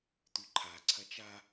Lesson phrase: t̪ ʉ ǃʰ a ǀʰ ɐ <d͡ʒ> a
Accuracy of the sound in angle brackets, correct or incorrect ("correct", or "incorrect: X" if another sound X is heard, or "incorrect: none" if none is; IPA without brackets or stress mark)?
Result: incorrect: t͡ʃ